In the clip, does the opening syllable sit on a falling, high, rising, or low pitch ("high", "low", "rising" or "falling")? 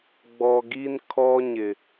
low